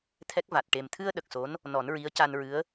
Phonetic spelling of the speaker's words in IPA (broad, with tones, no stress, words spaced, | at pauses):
t̪ʰɛ˦˥k̚va˨˩t̚ ʈe˨˩mt̪ʰɨ˧ə̯ ɗə˨˩k̚so˧˥n | nɔ˨˩˦nɹi˧˥ə̯ ca˧nɹɨ˧˥ə̯